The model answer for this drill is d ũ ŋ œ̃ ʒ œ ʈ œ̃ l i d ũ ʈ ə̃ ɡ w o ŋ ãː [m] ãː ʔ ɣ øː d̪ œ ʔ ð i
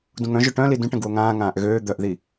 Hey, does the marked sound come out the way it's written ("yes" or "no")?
no